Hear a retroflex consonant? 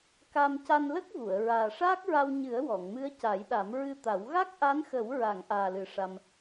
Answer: yes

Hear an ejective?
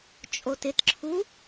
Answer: yes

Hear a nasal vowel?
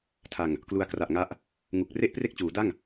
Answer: no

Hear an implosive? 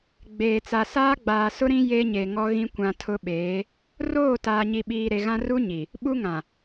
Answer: yes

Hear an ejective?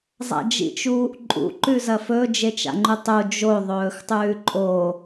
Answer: yes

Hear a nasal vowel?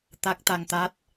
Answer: no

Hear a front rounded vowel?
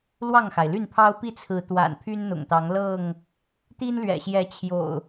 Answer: yes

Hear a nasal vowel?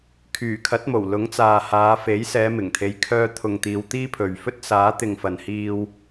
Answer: no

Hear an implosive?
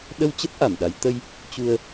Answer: yes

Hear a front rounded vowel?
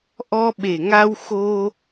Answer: no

